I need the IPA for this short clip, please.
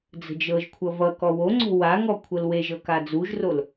d͡zə̤d͡ʒɤʒkʷʰʌ vʌkɔ woŋ͡ǀo̤ waŋɔ kʷʰɤlweʒɤ kad͡zuʒrol

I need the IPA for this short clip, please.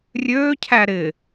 rʲøːcʰæ ɾɪ

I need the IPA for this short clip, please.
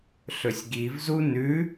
ɬɵsʲɡivzu nʉ

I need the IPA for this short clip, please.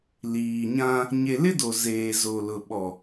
liː˨ɲã˦ | ɲe˨lɪ˦ do˨zeː˨ zo˨lʊ˨ ɓɔ˨

